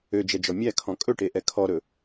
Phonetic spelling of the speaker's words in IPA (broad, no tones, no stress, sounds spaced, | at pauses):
ø d͡ʒ ɛ d͡ʒ ɔ mʲ æ kʰ ɔ̃ kʼ ɵ ʈ e ʔ ɛ kʰ ɔ ɾ ɵ